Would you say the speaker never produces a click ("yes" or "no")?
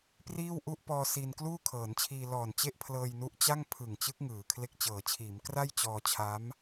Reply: yes